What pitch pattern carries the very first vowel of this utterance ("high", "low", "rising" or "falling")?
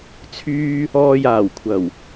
high